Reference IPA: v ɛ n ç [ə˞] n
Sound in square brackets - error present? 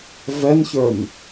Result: no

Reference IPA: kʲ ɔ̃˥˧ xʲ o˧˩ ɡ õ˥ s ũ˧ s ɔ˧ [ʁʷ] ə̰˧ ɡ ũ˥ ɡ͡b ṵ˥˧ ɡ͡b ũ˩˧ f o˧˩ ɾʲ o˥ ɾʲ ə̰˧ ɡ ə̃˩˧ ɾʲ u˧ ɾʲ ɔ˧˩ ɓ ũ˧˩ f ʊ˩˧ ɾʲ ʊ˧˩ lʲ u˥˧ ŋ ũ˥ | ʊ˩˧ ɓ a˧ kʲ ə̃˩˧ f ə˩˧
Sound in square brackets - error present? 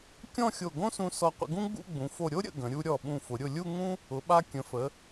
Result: yes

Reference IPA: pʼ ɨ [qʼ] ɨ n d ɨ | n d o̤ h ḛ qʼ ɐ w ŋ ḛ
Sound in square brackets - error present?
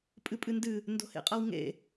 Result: yes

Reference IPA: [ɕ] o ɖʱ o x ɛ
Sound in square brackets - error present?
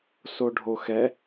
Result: yes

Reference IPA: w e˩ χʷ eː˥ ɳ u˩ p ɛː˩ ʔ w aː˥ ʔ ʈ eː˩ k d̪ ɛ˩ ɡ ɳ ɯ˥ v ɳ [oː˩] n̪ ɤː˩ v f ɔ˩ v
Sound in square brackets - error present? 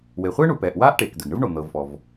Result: yes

